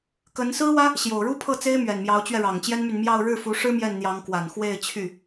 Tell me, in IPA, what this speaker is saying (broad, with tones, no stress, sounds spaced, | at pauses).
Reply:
k ə˧˥ n s ɹ̩˥ w ä˥ | ɕ j o˨˩ ʊ̯ ɻ u˥ pʰ ɤ˥˩ t͡s e˥ ɪ̯ m ɥ ɛ˨˩ n m j ɑ˧˥ ʊ̯ t͡ɕ ɥ ɛ˧ ɻ ɑ˨˩ ŋ t͡ɕ j ɛ˥ n m y˨ n m j ɑ˥˧ ʊ̯ ɻ ɻ̩˥˩ f u˧˥ ʂ ɻ̩˥ m j ɛ˥˩ n n̪ j ɑ˧˥ ŋ k w a˨˩ n x w e˥˧ ɪ̯ t͡ɕʰ y˥˩